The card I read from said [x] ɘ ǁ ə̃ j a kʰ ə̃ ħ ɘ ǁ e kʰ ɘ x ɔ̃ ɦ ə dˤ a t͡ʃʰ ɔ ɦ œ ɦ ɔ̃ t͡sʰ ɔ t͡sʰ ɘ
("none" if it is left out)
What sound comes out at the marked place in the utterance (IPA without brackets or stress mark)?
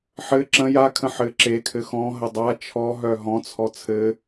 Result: ħ